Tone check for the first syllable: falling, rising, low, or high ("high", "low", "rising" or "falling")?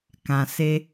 low